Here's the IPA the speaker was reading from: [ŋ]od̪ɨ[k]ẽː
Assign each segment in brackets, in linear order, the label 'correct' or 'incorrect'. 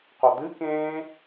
incorrect: q, correct

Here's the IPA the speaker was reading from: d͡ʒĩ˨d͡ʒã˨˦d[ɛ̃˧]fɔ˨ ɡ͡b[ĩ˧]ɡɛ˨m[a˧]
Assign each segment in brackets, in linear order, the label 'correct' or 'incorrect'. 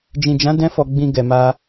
correct, correct, correct

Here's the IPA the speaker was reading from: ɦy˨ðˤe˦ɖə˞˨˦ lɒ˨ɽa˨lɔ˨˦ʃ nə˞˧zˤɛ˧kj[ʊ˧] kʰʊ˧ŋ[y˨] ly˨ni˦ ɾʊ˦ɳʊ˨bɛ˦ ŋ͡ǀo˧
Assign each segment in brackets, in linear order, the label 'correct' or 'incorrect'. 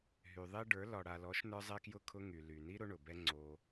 correct, correct

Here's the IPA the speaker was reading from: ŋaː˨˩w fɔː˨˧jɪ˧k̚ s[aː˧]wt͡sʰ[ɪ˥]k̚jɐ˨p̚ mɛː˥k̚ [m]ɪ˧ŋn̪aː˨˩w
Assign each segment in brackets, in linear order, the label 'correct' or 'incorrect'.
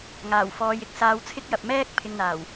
correct, correct, incorrect: pʰ

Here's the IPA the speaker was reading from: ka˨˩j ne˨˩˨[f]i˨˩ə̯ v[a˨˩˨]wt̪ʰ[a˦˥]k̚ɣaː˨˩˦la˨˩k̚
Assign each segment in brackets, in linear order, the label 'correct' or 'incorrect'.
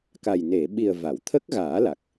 incorrect: ɓ, correct, incorrect: ə˦˥

